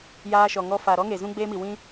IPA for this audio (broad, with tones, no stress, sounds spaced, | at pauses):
j aː˧ ʃ ɔ˨ ŋ ɔ˧ f a˨ ɾ ɔ˦ ŋ e˨ z ũ˦ ɡ͡b eː˦ m i˨ w ĩ˦